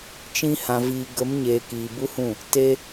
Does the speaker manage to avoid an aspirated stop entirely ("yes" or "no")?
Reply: yes